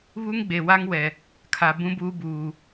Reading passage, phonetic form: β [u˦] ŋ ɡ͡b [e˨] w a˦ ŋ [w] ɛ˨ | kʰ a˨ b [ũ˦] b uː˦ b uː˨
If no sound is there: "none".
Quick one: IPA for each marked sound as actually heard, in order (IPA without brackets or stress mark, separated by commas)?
u˦, e˨, w, ũ˦